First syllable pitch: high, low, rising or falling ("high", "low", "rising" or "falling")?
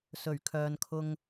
low